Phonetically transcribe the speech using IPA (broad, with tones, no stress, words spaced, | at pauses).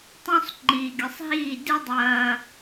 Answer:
tˤũ˧sˤ ŋ͡ǃiː˨ɡʲɨ˨sˤɦiː˦˨ dɨ˦dˤɐː˧